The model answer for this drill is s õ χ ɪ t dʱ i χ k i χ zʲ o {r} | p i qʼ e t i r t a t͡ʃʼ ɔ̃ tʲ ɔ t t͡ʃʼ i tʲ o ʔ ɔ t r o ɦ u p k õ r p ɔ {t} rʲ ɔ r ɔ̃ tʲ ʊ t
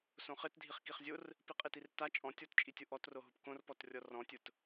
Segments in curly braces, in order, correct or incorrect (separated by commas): correct, correct